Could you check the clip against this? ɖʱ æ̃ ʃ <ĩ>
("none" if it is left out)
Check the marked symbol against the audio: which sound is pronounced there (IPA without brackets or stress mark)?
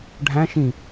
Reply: ĩ